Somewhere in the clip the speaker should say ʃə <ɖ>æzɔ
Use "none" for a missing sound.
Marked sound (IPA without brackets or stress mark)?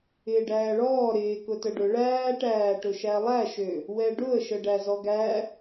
ɖ